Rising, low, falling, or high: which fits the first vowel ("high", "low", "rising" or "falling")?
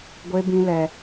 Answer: high